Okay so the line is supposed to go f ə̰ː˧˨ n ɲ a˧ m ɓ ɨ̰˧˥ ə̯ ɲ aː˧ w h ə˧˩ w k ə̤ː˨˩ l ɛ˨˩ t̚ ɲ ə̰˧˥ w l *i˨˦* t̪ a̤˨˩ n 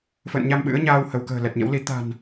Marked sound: correct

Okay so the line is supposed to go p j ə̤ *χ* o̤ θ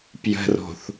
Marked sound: incorrect: r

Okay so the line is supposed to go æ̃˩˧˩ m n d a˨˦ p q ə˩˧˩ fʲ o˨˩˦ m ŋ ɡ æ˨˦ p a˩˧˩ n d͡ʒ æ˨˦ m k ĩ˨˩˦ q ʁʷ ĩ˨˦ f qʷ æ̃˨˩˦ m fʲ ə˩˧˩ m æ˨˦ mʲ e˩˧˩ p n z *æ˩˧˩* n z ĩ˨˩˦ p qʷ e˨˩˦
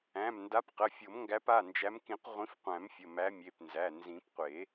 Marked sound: correct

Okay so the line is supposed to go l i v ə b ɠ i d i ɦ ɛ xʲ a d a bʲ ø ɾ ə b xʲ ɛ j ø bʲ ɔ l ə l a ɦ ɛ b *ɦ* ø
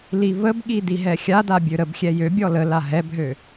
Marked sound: correct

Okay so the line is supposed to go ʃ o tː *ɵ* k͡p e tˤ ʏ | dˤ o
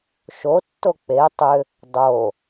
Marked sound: incorrect: o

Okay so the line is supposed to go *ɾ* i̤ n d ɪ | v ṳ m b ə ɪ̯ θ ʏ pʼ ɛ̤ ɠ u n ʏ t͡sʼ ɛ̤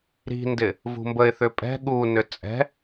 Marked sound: correct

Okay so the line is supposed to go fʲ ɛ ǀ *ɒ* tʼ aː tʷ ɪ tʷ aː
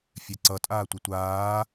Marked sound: incorrect: ʌ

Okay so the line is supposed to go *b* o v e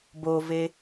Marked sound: correct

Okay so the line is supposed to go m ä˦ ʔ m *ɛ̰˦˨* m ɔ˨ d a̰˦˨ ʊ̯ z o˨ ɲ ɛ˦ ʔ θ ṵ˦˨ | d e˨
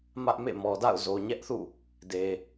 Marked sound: incorrect: ḛ˦˨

